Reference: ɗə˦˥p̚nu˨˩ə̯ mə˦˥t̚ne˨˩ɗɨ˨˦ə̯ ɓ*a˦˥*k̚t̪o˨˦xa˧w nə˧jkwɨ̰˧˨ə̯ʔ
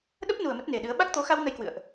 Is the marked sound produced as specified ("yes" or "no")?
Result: yes